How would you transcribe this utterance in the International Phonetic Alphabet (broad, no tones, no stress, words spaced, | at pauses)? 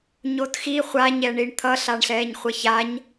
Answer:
ɲotxi χʷaɲɛɳiɳ t̪ʰʌɬaɳ ɬɛːɲχʷʌçaɲ